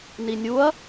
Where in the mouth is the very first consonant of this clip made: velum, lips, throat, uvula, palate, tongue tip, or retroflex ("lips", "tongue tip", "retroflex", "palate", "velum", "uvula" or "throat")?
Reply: tongue tip